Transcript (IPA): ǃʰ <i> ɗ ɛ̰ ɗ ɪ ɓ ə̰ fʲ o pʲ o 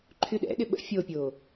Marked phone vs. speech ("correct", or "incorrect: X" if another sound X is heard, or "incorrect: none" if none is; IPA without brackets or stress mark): incorrect: y